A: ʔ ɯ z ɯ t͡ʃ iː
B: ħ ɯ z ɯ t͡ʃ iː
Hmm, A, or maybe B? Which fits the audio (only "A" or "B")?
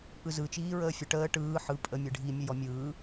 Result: A